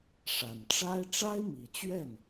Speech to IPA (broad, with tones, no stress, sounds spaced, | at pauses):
ʂ a˨˩ n ʈ͡ʂ a˥ ɪ̯ ʈ͡ʂ a˥ ɪ̯ m i˨˩ t͡ɕ ɥ ɛ˥˩ n